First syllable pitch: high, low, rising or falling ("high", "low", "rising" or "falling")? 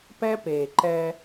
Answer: high